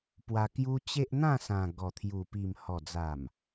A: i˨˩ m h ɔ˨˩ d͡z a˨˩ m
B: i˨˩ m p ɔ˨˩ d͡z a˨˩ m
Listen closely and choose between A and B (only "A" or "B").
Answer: A